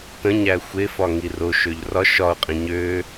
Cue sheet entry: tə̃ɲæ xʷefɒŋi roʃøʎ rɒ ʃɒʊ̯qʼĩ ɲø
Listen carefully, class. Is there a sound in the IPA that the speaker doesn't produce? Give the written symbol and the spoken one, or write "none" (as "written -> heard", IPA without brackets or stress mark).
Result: none